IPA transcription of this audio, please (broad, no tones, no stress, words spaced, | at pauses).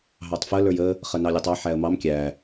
ɦɑtˤfə lə˞jə | χənɑlʲətˤɑ ħæə̯mɑm kʲæ